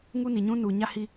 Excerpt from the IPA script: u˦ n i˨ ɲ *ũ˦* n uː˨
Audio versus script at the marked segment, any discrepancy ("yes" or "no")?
no